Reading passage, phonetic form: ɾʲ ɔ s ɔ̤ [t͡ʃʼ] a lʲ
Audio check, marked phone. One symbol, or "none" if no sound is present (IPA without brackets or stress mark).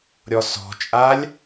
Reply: t͡ʃʼ